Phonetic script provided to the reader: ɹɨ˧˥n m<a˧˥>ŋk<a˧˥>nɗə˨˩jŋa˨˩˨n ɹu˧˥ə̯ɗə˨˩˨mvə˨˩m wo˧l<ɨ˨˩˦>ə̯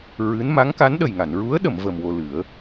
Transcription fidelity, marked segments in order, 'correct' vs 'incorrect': correct, correct, correct

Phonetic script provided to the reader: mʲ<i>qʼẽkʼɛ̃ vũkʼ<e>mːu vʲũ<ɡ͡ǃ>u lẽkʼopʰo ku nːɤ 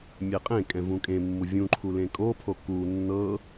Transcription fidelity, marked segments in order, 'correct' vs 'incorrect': incorrect: e, incorrect: ẽ, incorrect: ǃʰ

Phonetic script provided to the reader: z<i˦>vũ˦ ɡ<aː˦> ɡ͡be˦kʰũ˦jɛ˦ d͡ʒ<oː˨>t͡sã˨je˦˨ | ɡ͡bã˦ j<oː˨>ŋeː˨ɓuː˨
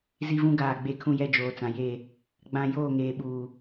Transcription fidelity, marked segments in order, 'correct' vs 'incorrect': correct, incorrect: aː˦˨, correct, incorrect: oː˦˨

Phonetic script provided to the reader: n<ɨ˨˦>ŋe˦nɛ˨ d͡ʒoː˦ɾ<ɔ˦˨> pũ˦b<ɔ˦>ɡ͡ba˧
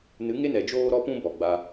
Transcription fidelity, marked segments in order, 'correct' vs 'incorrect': correct, incorrect: ɔ˦, incorrect: ɔ˨

